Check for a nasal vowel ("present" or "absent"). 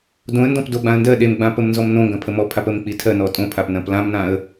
present